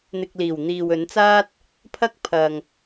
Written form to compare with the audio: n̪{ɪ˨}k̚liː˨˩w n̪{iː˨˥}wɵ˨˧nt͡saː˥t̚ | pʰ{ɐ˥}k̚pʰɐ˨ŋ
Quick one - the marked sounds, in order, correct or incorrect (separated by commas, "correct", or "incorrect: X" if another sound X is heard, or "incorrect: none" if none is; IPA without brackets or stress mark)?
correct, incorrect: iː˨, correct